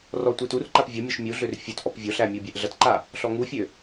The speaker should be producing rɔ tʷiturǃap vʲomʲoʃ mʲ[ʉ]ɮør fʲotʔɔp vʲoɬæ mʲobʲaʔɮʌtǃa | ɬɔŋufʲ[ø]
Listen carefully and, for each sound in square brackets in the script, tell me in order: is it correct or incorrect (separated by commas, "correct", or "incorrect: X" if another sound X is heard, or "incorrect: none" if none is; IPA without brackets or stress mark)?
incorrect: u, correct